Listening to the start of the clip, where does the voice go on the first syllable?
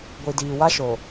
low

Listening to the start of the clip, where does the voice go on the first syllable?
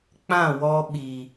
falling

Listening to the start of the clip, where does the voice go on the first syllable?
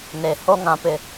low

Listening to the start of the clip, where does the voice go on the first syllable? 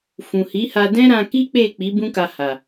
low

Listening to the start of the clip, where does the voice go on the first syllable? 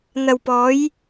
low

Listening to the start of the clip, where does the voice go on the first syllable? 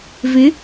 rising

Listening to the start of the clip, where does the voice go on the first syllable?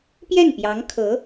falling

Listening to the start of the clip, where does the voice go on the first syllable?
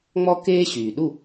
high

